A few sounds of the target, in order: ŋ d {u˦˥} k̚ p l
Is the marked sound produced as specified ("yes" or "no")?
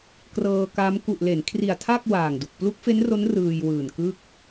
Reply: no